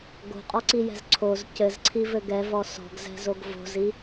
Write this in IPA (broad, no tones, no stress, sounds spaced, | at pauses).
ɡ o̤ qʼ ɔ ǀ i j ɛ̤ z ǀʰ o z c ɘ z ǀʰ i v ɘ ɡ ɛ v ɔ s ɔ̤ ɡ z ɛ̤ z o ɡ v o̤ z i